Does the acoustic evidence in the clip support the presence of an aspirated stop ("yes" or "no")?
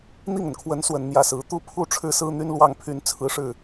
yes